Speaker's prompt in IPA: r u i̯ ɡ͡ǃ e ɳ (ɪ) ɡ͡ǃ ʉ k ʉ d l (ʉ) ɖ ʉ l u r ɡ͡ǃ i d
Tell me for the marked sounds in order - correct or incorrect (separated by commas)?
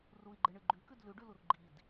incorrect, correct